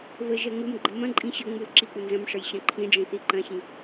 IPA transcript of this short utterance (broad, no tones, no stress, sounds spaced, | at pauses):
β ə ʒ ɜ ŋ u m ɡ͡ǃ ə m ɐ̃ ǃʼ ĩ ɕ ə ŋ͡m u l ǁ i k͡p u n z ɐ̃ m ʂ ə j ɕ ɐ̃ ǃʰ ĩ ɖ͡ʐ ĩ θ i ǃ ɐ̃ ɕ ĩ